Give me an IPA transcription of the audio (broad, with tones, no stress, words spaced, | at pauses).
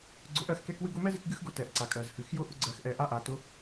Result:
ɡ͡ǀʊ˧˥ʔɜ˧xkɛ˥k wɨ˥ɡʊ˥ mɛ˥zɨ˧k ɡɨ˥xɡʊ˧˥tɛ˩ʔǀa˩ kʼɜ˩zhɨ˩˧xjʊ˥ ʔʊ˥ɡ͡ǀɜ˧xʔɛ˧ ʔa˥ʔa˩˧tʊ˧˥